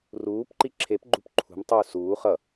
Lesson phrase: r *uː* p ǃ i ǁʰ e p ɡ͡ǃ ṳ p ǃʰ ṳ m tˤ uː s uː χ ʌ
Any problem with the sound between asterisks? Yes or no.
no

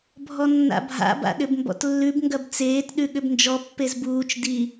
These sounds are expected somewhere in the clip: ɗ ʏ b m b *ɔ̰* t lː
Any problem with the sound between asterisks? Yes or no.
no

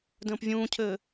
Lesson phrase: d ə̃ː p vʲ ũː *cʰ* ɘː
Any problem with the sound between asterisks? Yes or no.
no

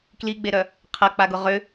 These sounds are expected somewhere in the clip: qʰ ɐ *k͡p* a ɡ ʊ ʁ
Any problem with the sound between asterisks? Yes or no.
no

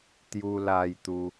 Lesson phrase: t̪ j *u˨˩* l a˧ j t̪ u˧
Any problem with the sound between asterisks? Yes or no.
yes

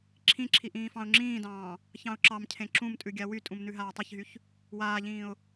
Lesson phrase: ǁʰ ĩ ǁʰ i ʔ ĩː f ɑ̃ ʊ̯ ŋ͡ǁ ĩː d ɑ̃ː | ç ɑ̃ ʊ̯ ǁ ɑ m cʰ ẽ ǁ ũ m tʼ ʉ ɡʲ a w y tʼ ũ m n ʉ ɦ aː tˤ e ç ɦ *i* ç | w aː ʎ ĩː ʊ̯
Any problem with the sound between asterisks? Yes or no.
yes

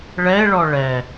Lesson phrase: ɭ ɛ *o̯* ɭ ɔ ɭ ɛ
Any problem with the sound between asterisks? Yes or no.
yes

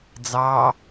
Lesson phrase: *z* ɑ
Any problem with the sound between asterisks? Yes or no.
yes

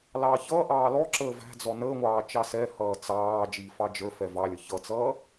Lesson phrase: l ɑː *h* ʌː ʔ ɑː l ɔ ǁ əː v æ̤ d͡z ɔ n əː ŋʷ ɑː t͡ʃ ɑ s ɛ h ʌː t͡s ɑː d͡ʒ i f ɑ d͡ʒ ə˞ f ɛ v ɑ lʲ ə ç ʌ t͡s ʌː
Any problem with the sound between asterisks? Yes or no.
yes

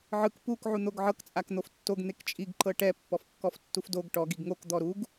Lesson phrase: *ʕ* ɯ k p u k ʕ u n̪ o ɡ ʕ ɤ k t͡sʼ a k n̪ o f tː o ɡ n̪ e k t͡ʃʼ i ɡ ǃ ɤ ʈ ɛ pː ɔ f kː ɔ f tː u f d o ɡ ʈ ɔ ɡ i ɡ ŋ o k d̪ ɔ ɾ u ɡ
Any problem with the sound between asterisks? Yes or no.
no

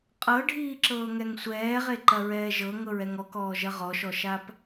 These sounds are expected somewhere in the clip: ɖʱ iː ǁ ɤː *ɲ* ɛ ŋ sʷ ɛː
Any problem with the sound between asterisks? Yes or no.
yes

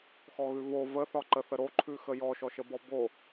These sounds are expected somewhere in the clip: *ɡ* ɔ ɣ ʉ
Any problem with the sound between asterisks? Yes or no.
yes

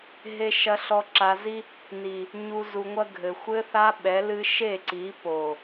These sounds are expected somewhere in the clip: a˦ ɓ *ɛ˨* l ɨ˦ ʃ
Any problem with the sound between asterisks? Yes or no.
yes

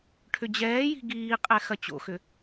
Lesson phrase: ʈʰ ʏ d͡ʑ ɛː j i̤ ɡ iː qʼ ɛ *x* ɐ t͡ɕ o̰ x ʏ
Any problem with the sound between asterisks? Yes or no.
no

